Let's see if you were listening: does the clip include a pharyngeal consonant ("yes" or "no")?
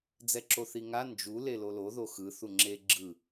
no